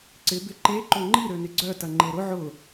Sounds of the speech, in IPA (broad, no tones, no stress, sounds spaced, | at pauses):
ǀ ɪ b ɪ ǃ e ǃ o ŋ͡ǃ i ɾ ø n ɪ ɡ͡ǀ œ t ɐ ŋ͡ǃ e ɾ ʊ ʕ ʊ